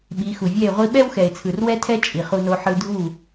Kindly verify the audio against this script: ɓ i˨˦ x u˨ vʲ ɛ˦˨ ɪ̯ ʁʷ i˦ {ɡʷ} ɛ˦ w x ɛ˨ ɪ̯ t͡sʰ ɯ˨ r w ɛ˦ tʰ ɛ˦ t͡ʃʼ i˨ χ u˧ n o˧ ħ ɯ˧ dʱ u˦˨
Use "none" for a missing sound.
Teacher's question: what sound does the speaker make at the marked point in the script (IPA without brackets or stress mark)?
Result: ɓ